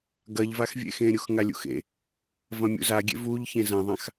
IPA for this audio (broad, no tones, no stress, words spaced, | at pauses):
ɡɐʎvaxvʲḛxẽ ɾʲuxŋalʲṵxḛ | vɐ̃mʲṵzaɡʲḛ vuʎ çẽzɐ̃ðˤãx